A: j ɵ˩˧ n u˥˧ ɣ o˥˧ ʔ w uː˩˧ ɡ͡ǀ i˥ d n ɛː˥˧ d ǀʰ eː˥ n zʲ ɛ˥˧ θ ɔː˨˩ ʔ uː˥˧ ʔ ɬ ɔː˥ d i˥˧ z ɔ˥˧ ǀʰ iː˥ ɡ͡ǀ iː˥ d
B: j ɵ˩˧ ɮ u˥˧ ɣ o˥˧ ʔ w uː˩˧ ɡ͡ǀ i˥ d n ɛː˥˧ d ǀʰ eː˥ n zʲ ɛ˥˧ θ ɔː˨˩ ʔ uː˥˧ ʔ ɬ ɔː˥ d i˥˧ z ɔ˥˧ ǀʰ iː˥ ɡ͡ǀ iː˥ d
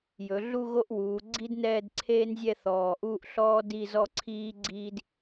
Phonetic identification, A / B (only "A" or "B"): B